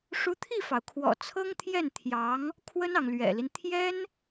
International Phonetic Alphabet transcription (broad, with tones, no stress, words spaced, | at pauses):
ʂu˧˥ t̪ʰi˥˩fɑ˩ʊ̯ kʰwɔ̰˨˩t͡sʰɤ˥ŋt̪ʰjɛ˥˩n t̪ʰjɑ˧˥ŋ | kʰwə˥nɑ˨ŋ lɥɛ̰˨˩li˦n t̪ʰjɛ˥n